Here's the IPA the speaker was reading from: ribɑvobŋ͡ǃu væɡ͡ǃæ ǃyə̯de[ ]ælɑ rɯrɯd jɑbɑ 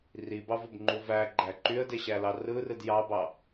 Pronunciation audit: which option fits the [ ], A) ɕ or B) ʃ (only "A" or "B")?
A